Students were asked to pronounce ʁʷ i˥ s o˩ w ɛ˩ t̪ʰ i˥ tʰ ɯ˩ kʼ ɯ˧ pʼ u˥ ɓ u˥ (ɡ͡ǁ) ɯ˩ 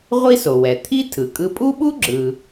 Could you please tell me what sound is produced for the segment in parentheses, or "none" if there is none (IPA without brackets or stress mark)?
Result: ɡ͡ǁ